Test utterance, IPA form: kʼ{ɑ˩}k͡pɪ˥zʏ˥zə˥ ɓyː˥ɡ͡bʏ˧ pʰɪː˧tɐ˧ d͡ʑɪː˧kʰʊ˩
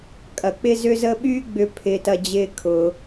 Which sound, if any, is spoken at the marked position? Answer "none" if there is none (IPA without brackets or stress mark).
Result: ɐ˩